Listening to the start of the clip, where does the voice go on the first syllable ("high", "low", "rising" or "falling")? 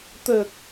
low